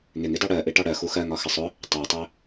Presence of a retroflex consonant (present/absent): present